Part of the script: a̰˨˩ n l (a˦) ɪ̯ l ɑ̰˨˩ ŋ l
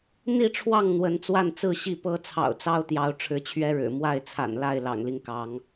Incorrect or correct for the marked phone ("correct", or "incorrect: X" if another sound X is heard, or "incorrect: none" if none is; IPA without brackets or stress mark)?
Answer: incorrect: a˥˨